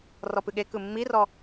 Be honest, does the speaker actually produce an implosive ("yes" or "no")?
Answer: yes